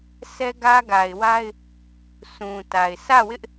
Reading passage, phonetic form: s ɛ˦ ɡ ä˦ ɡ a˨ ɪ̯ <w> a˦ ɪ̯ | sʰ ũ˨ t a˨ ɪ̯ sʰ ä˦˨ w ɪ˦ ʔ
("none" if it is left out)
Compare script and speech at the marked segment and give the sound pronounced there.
w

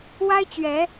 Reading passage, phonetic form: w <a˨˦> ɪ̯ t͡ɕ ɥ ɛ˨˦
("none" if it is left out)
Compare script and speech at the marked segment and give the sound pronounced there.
a˦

